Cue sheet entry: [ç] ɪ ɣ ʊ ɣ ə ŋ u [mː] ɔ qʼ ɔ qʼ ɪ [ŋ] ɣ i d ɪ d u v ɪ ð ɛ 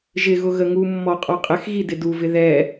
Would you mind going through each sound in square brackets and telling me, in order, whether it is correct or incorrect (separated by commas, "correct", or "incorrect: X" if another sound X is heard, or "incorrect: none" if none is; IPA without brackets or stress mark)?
incorrect: ʒ, correct, incorrect: x